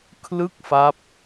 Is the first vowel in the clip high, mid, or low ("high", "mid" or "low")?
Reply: high